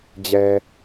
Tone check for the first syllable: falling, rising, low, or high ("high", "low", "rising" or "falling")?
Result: low